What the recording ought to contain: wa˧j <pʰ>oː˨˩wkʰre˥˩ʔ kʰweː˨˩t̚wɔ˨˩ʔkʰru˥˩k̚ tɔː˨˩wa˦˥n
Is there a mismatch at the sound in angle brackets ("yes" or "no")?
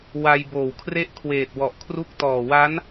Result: yes